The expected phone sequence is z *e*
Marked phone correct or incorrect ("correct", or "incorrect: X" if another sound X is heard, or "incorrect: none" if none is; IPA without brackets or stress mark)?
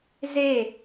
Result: correct